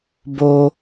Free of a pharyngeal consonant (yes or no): yes